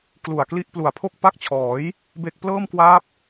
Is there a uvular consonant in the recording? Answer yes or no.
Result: no